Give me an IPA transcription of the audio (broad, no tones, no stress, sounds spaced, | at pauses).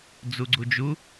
d͡z u ɡ͡ǀ u d͡ʒ u